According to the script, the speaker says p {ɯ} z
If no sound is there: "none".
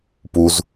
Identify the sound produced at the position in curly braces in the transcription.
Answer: u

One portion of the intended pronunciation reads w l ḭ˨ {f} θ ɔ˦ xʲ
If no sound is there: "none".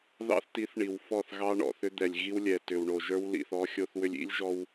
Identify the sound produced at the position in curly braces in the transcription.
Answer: none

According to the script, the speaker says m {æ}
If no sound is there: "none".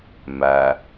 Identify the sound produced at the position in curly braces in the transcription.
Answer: æ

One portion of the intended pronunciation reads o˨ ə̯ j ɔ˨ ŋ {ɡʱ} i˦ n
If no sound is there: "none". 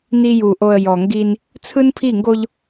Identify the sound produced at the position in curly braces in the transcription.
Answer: ɡ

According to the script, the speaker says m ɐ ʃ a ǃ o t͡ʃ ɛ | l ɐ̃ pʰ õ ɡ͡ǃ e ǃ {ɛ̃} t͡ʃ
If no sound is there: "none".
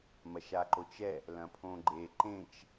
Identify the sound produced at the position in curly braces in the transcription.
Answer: ẽ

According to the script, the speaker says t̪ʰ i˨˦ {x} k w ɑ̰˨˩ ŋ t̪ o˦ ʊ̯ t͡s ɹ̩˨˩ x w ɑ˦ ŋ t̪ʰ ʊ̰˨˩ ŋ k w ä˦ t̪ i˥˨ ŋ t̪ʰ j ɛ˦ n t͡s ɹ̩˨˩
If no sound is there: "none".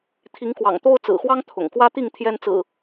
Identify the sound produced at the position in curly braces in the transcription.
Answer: ŋ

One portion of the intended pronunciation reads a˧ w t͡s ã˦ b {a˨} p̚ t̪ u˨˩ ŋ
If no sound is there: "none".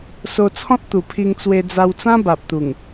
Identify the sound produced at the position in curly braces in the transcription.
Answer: a˨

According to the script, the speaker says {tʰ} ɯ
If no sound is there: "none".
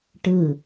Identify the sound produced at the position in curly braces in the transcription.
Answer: ʈ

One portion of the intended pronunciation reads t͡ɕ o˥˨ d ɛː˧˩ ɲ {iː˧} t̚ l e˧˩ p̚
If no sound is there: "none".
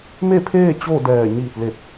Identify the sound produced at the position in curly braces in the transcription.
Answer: iː˧˩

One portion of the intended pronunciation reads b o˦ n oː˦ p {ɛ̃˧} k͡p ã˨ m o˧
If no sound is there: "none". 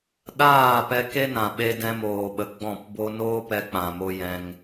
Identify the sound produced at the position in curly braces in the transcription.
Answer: ɛ˧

